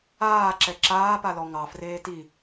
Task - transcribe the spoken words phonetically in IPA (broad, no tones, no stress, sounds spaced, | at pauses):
aː ǁ ɛ ǁ aː p a l ɔ ŋ ɑ f r eː t i